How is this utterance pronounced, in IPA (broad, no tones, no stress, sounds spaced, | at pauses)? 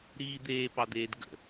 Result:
ɾ iː d̪ eː p ɑ d̪ eː d ɡ ə̰